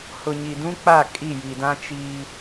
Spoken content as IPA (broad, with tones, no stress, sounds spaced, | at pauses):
h ʊ˨ ɲ i˨ d ũ˦ k͡p a˦˨ kʼ i˦˨ j i˨ d ã˦ t͡ʃ iː˦